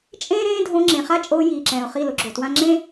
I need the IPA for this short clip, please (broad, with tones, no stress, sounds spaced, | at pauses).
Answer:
t͡ʃʼ ẽː˦ ɾ ẽː˦ dʱ õ˧ ŋ͡ǁ ẽ˨ χ a˦ t͡ʃʼ oː˧ j iː˨ ǁ ɛ̃ː˨ ʊ̯ χ i˦˨ l ʊ˧ ɡ͡ǁ o˨ t w ã˦ ŋ͡ǁ ẽ˦